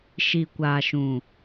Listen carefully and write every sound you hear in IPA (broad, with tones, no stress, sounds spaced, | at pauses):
ʃ i˨ kʷ aː˨ ʃ ũ˨